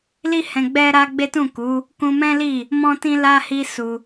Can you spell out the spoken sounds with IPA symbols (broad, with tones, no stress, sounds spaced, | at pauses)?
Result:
l i˦ h ɛ̃˧ ɡ͡b ɛ˦ ɾ a˦ ɡ͡b e˦ t ũ˦˨ k u˨˦ | k ũ˧ m ɛ̃˦ l i˦˨ | m ɔ̃˦ t ĩ˦ l a˦ h i˦ s u˧